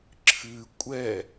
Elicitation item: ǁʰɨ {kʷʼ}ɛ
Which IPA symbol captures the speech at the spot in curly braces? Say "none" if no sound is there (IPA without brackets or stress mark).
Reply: kʷʼ